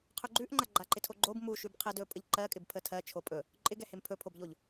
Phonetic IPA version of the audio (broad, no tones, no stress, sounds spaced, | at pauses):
qʰ ɵ ɡ͡ǃ ʉ ʔ ŋ͡ǃ a ɡ͡ǃ a ǃ ɪ tʰ o ɡ͡ǃ o b m u ʃ ʉ b qʰ ɛ d ɵ pʼ ə ʎ ǃ ɜ kʼ ɪ b pʰ ə tʰ ɜ t͡ʃʰ o pʼ ɵ | ǃʼ ɪ ɡ ɛ h e m pʰ ɵ pʰ o b ʎ o ʎ